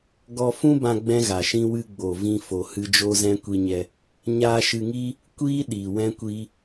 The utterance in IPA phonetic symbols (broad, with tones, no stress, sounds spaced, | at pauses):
ɡ ɔ˧ f ũ˦ b ã˧ ɡ͡b ɛ̃˦ ɣ a˨ ʃ ĩ˦ w ɨ˧ ɡ͡b o˨ v ĩ˦ f o˧ h ɨ˦ d͡ʒ o˦ z ɛ̃˦ kʷ i˧ ɲ ɛ˧ | ɲ aː˧ ʃ ɨ˧ ŋ iː˦ | kʷ iː˦ ɗ iː˨ w ɛ̃˦ kʷ iː˦